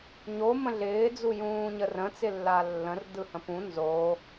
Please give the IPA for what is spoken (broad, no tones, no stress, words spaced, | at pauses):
ɲo mə̃ɮɪː d͡zujũːɲərə̃ t͡sɪlːalːə̃r dɯhə̃pũ nzo